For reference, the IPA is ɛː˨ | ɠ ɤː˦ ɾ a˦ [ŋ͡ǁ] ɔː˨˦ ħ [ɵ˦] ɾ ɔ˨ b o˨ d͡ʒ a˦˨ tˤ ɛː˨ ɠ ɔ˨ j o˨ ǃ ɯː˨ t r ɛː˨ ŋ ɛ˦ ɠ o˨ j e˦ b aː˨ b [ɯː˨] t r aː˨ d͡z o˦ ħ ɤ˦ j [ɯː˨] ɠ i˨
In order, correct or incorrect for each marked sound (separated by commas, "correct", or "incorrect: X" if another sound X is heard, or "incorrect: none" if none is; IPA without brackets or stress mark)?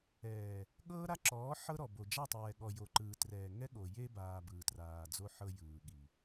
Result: incorrect: ǁ, incorrect: ɤ˦, correct, correct